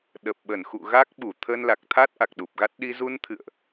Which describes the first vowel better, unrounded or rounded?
unrounded